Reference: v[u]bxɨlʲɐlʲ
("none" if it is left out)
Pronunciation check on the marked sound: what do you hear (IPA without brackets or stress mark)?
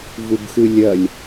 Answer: u